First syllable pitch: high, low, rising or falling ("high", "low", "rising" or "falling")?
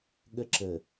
high